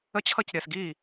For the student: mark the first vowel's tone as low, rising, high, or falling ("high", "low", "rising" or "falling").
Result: high